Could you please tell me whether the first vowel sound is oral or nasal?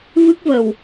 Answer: oral